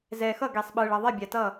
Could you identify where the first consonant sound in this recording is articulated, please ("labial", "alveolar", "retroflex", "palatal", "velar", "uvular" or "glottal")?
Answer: alveolar